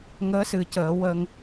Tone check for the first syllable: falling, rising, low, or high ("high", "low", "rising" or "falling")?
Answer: rising